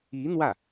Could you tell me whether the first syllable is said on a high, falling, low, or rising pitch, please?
rising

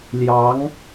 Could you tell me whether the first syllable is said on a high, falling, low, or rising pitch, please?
rising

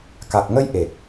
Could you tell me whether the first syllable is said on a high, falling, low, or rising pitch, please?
low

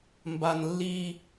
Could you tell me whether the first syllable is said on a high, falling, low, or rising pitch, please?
low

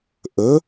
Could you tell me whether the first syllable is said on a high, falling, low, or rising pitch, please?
rising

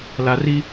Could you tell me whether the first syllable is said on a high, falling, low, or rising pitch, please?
low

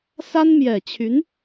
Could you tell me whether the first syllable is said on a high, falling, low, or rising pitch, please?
high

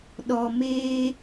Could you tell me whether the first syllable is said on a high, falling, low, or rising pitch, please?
low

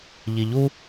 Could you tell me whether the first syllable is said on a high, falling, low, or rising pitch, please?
low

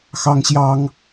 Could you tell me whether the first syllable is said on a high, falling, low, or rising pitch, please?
high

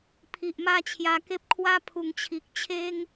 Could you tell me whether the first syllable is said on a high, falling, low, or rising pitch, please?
low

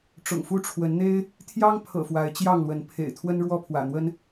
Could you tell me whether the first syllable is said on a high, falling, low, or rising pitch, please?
low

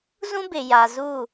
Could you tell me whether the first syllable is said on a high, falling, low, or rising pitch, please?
high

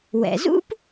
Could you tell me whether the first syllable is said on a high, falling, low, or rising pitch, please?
low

